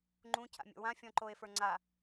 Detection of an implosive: absent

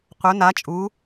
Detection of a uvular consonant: present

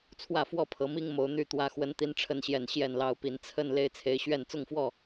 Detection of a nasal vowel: absent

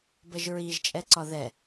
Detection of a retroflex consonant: absent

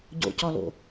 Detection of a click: absent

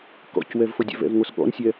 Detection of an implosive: present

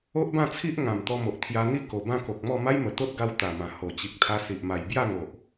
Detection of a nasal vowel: present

